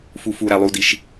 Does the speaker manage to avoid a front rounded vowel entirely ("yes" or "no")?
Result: yes